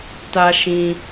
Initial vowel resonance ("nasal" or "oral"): oral